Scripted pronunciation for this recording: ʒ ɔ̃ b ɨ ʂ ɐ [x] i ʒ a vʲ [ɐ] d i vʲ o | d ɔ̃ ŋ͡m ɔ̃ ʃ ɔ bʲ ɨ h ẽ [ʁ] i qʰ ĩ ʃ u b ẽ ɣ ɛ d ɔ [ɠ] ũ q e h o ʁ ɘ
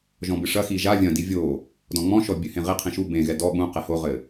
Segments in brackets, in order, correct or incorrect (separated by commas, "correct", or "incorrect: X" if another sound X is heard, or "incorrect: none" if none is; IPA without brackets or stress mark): correct, incorrect: ɐ̃, correct, correct